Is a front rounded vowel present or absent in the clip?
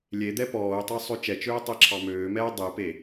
present